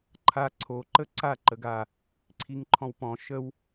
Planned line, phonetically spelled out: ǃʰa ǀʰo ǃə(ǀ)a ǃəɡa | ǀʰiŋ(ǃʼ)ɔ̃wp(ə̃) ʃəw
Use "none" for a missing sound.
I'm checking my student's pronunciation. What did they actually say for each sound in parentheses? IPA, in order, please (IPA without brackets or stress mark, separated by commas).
ǀ, ǃʰ, ɔ̃